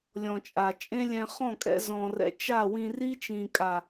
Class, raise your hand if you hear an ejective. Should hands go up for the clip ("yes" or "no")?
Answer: yes